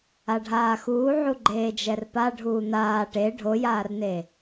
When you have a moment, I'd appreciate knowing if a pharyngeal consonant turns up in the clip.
yes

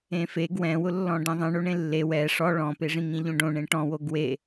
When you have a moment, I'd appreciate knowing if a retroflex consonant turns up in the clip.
yes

